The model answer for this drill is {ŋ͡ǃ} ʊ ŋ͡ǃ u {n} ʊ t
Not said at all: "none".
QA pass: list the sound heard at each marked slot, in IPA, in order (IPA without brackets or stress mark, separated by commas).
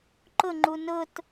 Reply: ǃ, n